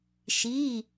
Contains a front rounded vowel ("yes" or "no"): no